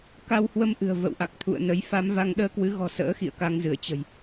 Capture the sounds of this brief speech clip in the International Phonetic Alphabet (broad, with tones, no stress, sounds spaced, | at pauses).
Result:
k a˧ w h w ə˧ m ʔ ɨ̤˨˩ ə̯ v ə̰˧˨ w ʔ a˨˩ k̚ t̪ʰ ṵ˧˨ ə̯ n ə˨˦ j f a˨˦ m v a˧ ŋ ɗ əː˧ k w ɨ˨˦ ɣ ɔ̤˨˩ s ə̰ː˧˥ x ḭ˧˨ ə̯ k a˧ ŋ z ɨ˧˩ ə̯ t͡ɕ ə̤˨˩ j